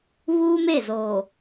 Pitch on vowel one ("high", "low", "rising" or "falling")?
high